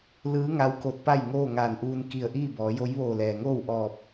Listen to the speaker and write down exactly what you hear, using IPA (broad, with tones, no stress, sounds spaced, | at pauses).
l ɯː˧˥ ŋ a˧˥ w k o˧ t̚ p a˥˨ j ŋ oː˥˨ ŋ aː˧˩ n ʔ uː˧ n k i˧˩ ə̯ ʔ iː˥˨ b ɔː˩˧ j o˧˥ j ʋ oː˧˩ l ɛː˩ ŋ oː˥˨ w ʔ ɔː˧˩ p̚